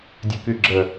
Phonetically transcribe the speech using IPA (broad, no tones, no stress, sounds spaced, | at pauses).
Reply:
dʲ œ k y ɡ͡ǁ ə